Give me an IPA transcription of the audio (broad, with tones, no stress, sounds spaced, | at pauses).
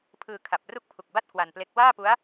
pʰ ɯː˧ kʰ a˨˩ p̚ r u˥˩ k̚ pʰ u˨˩ k̚ b a˥˩ t̚ k w a˧ n p l e˦˥ k̚ w aː˥˩ p u˦˥ a̯